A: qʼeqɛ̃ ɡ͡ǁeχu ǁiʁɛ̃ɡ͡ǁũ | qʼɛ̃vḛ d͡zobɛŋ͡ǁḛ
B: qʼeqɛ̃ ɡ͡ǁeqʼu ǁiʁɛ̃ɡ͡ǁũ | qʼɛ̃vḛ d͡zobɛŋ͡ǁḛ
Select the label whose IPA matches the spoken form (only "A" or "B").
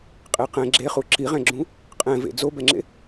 A